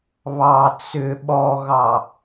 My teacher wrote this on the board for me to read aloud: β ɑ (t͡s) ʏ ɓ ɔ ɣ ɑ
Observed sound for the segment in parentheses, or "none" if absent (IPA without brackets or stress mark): t͡s